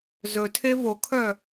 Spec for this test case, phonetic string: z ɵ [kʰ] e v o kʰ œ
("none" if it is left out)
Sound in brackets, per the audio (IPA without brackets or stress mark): tʰ